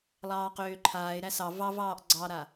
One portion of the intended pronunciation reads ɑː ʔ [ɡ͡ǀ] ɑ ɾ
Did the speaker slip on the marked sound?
no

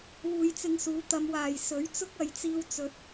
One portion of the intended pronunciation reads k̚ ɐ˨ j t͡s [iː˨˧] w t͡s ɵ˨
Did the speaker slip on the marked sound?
yes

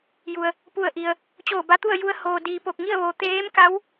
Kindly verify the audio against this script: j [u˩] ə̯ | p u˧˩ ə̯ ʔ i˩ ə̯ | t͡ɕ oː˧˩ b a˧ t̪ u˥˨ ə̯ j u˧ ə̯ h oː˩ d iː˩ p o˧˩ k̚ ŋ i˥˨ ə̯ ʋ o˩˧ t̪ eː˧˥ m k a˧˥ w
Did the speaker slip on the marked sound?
no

